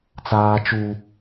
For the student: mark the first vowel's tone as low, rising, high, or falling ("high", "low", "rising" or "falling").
high